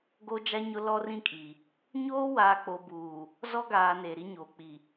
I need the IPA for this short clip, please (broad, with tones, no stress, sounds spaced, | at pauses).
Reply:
ɡ o˦ d͡ʒ a˦ ɲ ʊ˦ l ɔ˦ r ĩ˦ kʼ i˨ | ɲ oː˦ w aː˨ k͡p o˨ b uː˨ | z ɔ˦ ɡ aː˨ n eː˨ ɾ i˦ ɲ oː˨ k͡p i˨